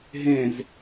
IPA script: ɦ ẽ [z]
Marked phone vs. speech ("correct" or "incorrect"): correct